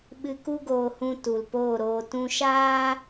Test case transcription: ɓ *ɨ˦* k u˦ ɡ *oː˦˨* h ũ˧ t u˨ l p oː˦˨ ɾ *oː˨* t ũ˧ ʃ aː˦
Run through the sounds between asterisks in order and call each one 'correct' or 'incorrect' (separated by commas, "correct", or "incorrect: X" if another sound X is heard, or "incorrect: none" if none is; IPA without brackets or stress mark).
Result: incorrect: ɨ˧, incorrect: oː˧, incorrect: oː˧